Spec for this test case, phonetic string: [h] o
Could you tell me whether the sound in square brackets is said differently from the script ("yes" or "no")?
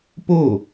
yes